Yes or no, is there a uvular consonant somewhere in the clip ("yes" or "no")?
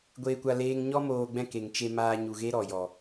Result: no